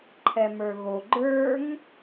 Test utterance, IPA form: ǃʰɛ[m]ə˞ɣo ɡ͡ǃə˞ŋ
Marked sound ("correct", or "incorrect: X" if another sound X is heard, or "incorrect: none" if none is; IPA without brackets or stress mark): correct